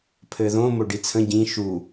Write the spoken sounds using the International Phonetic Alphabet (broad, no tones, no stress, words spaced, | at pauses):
pʰɘðõ moɖit͡sʰə̃ ɟĩ ʃu